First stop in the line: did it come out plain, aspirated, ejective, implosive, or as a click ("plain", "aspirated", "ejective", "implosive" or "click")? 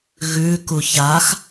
plain